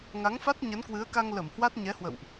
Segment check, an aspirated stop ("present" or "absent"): absent